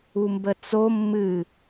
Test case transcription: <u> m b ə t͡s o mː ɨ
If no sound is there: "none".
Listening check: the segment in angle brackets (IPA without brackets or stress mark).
u